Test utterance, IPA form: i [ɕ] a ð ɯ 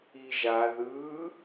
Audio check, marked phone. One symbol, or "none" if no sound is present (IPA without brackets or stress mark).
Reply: ʒ